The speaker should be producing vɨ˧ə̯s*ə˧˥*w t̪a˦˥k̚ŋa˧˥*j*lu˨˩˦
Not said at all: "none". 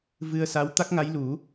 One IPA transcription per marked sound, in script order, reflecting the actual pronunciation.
a˧˥, j

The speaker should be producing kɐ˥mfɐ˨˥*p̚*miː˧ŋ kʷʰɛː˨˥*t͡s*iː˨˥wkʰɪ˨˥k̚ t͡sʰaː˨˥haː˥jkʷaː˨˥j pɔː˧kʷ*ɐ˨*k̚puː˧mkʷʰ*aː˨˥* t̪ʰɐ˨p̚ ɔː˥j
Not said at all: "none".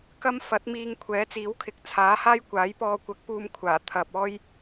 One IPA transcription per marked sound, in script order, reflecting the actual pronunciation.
t̚, t͡s, ɐ˨˥, aː˨˩

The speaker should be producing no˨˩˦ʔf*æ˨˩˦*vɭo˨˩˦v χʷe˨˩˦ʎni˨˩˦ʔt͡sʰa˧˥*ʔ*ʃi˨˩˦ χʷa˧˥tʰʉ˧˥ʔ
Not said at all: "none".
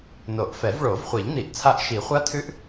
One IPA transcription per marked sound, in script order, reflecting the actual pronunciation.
ɛ˨˩˦, ʔ

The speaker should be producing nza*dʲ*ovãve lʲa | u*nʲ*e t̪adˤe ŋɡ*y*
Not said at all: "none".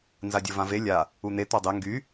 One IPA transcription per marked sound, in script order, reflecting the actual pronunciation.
dʲ, n̪, y

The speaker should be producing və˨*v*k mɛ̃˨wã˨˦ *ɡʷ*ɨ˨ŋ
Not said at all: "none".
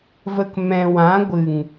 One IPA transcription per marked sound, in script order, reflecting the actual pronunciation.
none, ɡʷ

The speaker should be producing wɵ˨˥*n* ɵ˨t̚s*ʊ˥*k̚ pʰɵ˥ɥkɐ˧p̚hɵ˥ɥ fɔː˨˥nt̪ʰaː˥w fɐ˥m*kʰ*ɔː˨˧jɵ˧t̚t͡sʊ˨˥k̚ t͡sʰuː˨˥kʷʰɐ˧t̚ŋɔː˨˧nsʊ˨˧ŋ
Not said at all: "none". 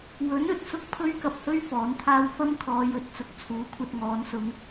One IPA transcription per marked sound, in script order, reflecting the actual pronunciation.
n, ʊ˥, kʰ

